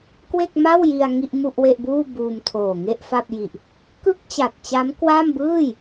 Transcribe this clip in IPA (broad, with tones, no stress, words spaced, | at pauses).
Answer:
kwe˥˩k̚ma˥˩wji˧a̯ ŋi˥˩ʔmu˥˩ʔwe˥˩ʔbuː˥˩ buː˧mtʰoː˨˩ŋe˥˩ʔfa˥˩p̚ ji˨˩ʔ | kɯ˥˩k̚ t͡ɕa˨˩t̚t͡ɕa˦˥mkwa˥˩m bɯː˥˩j